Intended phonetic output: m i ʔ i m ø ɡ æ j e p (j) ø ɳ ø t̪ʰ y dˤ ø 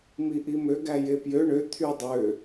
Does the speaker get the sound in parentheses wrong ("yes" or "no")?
no